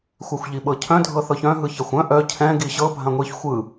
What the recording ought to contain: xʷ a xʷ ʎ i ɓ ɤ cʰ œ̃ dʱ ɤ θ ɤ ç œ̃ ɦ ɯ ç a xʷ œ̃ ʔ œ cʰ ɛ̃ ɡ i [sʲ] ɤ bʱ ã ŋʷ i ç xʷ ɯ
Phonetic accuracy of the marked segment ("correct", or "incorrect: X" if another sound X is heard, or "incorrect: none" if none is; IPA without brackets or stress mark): incorrect: ɕ